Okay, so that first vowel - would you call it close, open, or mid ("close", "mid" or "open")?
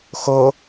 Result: mid